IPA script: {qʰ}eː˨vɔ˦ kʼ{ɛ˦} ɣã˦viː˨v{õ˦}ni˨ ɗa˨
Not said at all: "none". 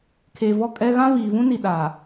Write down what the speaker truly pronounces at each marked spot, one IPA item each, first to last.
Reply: kʰ, ɛ˦, ũ˦

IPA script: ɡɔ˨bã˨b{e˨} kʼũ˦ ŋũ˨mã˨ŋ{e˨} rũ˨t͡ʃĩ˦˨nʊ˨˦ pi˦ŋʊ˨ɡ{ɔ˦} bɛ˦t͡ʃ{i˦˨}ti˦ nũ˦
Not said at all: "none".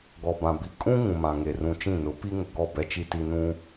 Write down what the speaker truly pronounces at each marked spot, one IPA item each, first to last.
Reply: i˨, e˨, ɔ˦˨, i˦

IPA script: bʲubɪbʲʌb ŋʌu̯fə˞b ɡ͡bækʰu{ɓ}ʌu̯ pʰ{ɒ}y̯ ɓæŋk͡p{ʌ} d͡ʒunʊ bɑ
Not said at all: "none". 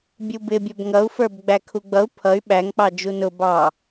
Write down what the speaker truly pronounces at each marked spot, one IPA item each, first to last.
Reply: ɡ͡b, ʌ, ɑ

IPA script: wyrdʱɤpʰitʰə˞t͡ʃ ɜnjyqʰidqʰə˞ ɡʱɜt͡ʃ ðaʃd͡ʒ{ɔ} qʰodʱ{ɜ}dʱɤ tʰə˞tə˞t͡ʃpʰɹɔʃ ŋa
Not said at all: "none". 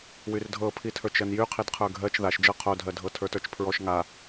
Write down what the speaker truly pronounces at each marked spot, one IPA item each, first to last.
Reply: ɤ, ɜ

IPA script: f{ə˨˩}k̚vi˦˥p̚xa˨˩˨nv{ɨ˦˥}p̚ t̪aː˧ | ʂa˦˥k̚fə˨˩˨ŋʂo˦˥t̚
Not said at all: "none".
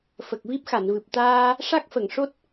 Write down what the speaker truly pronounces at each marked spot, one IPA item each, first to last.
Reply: ə˨˩, ɨ˨˩

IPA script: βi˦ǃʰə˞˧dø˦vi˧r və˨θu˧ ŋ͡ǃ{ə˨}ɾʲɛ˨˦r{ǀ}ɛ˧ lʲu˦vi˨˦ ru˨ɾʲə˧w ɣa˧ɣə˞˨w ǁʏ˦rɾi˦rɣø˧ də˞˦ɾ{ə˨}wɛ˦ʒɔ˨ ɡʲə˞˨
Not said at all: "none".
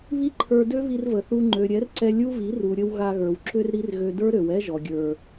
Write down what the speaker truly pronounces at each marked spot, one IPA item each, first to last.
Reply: ø˨, ǀ, ø˨

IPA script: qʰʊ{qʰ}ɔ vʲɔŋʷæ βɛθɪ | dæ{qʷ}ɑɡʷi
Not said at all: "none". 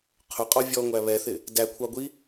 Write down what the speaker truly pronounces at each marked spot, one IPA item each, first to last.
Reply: qʼ, kʷʰ

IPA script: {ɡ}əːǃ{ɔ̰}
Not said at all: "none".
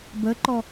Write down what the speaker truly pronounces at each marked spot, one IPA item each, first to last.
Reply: b, ɔ

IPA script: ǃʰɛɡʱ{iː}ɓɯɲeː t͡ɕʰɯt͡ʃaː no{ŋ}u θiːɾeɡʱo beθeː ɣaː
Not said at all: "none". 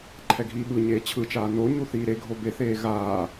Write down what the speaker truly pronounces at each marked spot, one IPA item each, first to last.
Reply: iː, ɲ

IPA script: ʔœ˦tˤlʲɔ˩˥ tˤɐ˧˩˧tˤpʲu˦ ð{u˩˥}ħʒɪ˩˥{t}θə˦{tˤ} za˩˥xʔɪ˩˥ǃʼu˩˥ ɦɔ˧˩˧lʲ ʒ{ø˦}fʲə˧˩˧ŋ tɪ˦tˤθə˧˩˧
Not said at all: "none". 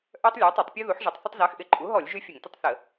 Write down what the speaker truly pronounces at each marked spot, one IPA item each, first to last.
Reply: u˩˥, tˤ, tˤ, y˦

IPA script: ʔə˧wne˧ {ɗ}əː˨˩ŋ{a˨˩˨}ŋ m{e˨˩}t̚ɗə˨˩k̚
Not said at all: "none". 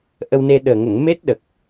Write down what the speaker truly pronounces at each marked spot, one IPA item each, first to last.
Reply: ɗ, ə˨˩˨, e˦˥

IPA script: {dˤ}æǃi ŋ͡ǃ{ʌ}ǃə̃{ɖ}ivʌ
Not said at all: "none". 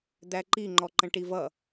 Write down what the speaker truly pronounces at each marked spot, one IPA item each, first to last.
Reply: d̪, ɔ, ʈ

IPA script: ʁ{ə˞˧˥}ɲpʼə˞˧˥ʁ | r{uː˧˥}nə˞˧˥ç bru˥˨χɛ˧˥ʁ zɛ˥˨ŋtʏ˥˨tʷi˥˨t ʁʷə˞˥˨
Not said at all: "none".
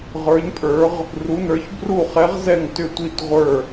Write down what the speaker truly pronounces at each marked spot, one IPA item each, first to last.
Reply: ə˞˧˥, u˧˥

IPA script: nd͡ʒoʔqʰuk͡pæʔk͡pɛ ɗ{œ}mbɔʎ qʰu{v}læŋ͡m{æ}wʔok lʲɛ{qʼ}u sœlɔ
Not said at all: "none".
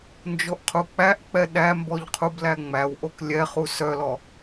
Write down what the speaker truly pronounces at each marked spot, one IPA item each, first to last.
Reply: æ, b, æ, χ

